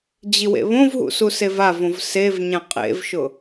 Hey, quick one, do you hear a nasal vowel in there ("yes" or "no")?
yes